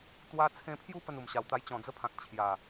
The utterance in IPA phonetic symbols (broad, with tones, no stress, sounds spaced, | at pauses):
t̪ w a˧ t͡sʰ ẽ˧ pʰ j u˥˧ p ə˥˧ n u˨˩ m ɕ a˨˩ w t̪ a˧ j t͡ɕ ɔ̃˨˩ d͡z ə˥˧ pʰ ã˨ k̚ t͡ɕʰ j a˨˩